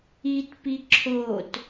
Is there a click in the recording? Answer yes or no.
yes